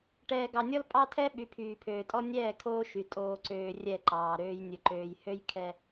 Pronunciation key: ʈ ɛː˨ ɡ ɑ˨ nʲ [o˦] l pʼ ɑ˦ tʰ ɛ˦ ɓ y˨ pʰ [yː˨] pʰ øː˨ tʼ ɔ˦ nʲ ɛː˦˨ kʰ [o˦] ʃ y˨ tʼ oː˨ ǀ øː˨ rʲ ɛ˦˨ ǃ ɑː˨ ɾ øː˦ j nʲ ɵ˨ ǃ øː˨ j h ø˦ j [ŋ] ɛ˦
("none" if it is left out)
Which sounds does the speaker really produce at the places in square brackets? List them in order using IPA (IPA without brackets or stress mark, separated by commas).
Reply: ɔ˦, yː˨, oː˦, kʰ